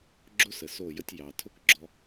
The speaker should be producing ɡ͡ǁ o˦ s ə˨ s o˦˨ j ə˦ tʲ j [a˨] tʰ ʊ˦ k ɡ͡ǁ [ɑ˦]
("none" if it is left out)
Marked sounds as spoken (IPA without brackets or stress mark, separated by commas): ɑ˨, ɔ˦